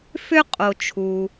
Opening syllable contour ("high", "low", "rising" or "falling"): high